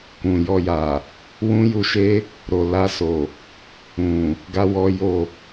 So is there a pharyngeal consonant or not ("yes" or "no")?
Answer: no